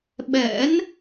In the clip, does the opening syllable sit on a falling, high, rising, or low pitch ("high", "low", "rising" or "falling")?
rising